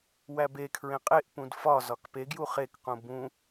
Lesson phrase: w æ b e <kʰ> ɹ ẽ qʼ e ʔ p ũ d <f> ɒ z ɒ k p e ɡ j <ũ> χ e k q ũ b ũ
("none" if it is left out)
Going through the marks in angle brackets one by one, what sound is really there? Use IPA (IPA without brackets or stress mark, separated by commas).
kʰ, f, u